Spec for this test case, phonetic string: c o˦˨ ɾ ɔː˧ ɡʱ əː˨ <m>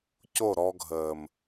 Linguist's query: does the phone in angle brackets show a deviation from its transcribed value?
no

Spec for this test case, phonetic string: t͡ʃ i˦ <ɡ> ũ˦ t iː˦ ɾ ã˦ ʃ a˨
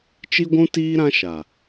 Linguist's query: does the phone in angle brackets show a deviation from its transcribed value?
yes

